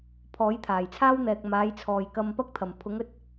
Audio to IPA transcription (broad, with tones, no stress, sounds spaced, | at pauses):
pʰ ɔː˨˥ j t̪ʰ aː˨˩ j t͡sʰ aː˥ w n̪ ɛː˨ k̚ m aː˨˥ j t͡sʰ ɔː˨˩ j k ɐ˧ m p ɐ˥ k̚ t̪ʰ ɐ˨˩ m pʰ ʊ˨˥ ŋ ɵ˨ t̚